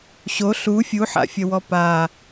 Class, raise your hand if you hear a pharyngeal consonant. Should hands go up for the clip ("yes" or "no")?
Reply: yes